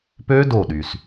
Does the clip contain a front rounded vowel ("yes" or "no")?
yes